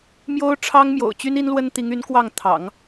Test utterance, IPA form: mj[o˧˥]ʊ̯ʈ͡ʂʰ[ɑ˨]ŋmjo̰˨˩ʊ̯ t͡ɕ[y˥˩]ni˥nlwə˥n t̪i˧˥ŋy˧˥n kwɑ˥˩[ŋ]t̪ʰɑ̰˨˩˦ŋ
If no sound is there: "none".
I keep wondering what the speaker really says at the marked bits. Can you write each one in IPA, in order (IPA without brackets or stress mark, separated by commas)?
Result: o˥, ɑ˥, y˥, ŋ